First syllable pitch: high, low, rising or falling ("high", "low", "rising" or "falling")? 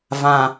low